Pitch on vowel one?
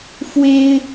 high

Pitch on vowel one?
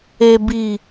low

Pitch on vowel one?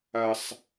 high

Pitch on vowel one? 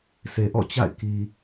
low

